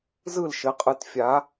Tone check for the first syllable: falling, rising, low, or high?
falling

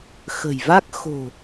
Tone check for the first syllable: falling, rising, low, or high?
low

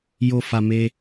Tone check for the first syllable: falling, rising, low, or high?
low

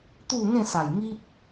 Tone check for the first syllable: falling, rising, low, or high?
falling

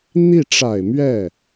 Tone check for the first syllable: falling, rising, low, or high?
falling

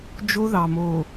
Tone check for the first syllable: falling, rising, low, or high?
high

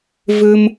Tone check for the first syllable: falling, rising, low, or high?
high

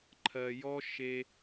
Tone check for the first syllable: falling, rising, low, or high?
low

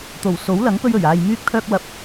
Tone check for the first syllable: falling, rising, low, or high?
low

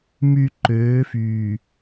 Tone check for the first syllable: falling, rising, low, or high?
low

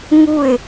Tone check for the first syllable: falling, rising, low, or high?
falling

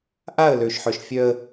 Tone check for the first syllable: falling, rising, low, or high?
falling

